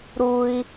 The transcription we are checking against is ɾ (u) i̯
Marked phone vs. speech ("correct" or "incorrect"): correct